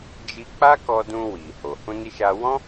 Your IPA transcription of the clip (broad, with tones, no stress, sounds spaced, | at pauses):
d͡ʒ i˧ k͡p a˦ k ɔ˧ d ũ˧ w i˨ h o˨ h ũ˧ n i˧ ʃ a˧ w ɔ̃˦